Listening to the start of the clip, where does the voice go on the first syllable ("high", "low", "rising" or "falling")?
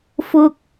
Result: high